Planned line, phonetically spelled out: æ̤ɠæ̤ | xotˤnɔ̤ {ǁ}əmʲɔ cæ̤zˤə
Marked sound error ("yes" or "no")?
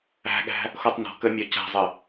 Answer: yes